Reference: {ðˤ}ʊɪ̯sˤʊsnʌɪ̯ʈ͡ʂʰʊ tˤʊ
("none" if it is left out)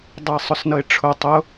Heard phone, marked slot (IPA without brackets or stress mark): dˤ